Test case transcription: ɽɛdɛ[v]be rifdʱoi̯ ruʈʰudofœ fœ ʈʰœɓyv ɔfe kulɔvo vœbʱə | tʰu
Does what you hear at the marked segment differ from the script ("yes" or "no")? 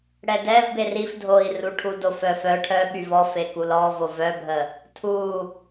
no